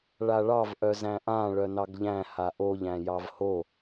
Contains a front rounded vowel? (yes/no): yes